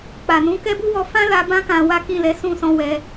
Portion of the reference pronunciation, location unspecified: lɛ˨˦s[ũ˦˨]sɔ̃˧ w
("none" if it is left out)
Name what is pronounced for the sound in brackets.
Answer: ũ˦˨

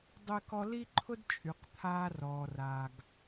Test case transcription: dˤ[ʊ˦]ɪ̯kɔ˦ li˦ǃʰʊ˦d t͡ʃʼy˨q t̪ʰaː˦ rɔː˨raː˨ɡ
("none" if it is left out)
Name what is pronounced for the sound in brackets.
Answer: ʊ˦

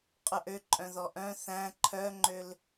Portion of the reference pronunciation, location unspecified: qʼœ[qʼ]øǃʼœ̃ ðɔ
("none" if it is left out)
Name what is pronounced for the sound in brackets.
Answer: ʔ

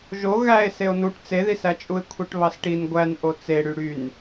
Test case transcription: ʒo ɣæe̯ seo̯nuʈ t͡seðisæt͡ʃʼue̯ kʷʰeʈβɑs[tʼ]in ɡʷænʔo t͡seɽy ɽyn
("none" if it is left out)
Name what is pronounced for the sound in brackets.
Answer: ʈ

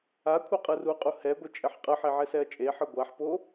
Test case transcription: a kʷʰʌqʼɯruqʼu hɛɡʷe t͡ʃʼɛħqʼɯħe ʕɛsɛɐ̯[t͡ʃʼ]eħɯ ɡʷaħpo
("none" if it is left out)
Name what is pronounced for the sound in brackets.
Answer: t͡ʃʼ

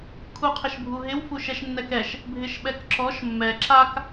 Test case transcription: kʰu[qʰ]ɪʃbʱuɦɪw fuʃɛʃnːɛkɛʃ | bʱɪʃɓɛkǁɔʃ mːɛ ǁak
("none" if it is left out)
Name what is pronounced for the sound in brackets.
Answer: qʰ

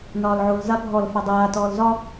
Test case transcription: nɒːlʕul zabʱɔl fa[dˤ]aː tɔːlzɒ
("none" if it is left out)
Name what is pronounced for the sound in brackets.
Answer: dˤ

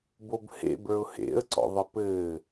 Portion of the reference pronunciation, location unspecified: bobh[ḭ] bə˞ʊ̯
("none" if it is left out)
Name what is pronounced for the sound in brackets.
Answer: ḛ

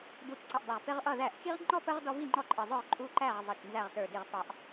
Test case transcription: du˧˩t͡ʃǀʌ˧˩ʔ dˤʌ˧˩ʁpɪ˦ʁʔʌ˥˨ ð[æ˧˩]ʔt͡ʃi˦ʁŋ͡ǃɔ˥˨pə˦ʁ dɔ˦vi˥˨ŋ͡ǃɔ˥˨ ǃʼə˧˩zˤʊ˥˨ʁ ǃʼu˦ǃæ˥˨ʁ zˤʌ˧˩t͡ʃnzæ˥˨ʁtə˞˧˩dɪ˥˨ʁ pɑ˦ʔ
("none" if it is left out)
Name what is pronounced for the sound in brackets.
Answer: æ˧˩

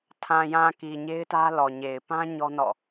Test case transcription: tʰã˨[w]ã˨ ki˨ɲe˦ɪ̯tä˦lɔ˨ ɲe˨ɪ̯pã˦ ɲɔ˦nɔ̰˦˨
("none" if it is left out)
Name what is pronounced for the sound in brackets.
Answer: j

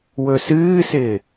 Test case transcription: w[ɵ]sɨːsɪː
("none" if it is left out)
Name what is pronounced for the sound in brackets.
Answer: ɵ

